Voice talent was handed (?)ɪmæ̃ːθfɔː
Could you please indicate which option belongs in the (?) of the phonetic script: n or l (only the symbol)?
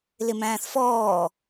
l